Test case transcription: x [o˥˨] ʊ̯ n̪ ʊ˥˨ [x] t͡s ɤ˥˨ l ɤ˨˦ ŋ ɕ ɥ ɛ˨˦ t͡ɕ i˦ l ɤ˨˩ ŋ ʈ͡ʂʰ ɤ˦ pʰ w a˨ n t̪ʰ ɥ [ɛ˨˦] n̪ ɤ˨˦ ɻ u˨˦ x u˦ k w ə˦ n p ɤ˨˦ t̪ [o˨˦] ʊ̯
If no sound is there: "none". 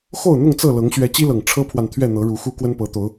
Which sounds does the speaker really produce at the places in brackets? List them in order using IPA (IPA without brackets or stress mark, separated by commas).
o˥˨, ŋ, ɛ˥˨, o˨˦